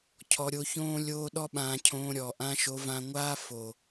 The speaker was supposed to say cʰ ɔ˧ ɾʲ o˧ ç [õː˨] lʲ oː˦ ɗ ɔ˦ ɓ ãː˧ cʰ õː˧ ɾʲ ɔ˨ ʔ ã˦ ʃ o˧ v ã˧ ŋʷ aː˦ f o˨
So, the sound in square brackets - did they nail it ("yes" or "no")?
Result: no